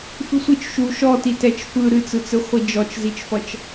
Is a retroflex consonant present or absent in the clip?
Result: absent